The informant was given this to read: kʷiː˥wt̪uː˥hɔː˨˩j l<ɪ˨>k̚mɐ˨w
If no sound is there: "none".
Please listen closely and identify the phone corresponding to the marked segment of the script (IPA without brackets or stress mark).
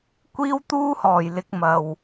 ɪ˧